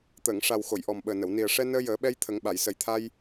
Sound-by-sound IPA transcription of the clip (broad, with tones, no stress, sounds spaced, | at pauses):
t̪ əː˨˩˨ ŋ ʂ a˨˩ w x o˨˩˨ j ʔ ɔ˨˩ m ɓ əː˨˩ n ə˨˩˨ w n i˨˩ ə̯ ʂ ɛ˧ n əː˧ j əː˨˩˦ ɓ ɛ˧ j t̪ʰ ə˨˩˦ ŋ ɓ a˨˩˨ j s ə˨˩˦ j t̪ʰ a˧ j